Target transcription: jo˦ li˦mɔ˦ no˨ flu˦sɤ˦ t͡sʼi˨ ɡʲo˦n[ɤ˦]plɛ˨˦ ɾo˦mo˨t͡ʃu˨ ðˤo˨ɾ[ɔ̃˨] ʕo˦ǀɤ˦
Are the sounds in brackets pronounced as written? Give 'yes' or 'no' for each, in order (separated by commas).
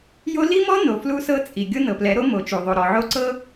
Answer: no, no